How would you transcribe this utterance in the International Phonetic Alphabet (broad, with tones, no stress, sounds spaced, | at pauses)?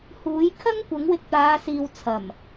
h uː˨˥ j kʰ ɐ˥ ŋ kʷ ɐ˨˥ ŋ w ɪ˧ k̚ t̪ aː˨˧ s iː˨ w t͡sʰ ɐ˨˩ m